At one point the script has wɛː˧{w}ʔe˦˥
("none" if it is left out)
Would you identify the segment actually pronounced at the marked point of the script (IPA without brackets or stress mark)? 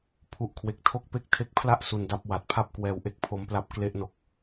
w